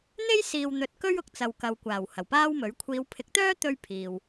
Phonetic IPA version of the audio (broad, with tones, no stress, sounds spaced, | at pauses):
n̪ e˥ j s iː˨ w n̪ ɵ˨ t̚ k ɵ˥ ɥ ʊ˧ k̚ t͡s ɐ˨ w k ɐ˨ w kʷ aː˨˩ w h ɐ˨˩ w p aː˥ w m ɵ˨˥ ɥ kʷʰ iː˨˧ w pʰ ɪ˨˥ k̚ t̪ œː˥ t̪ ɵ˧ ɥ pʰ iː˨ w